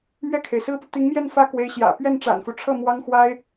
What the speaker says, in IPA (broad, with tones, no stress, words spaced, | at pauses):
mɥɛ˥˩kʰe˩ɪ̯sɹ̩˥pu˨ t̪i˧˥ŋmjɛ˥˩n fä˥kwe˧˥ɪ̯ɕjä̰˨˩ pɥɛ˥˩nʈ͡ʂa̰˨˩nfu˦ʈ͡ʂʰɤ˥˩ mwɑ˥ŋxwa˥ɪ̯